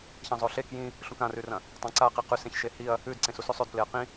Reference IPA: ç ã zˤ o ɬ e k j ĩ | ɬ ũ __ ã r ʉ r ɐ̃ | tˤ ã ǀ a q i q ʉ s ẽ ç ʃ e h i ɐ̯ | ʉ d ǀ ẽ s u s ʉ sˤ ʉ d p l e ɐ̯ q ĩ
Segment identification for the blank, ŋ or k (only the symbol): k